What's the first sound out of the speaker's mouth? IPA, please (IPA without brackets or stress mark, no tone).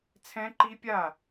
t͡sʰ